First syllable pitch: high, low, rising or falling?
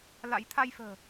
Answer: rising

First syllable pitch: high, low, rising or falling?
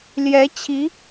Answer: rising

